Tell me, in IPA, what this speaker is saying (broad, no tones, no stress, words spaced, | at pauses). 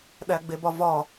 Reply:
ɗæɡ͡bebɒvɒ